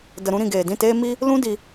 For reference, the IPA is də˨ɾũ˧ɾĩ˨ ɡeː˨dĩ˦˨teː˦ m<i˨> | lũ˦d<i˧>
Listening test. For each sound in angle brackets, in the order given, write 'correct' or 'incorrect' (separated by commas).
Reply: incorrect, correct